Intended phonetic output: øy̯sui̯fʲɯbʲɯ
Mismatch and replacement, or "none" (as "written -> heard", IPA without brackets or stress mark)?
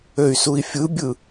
none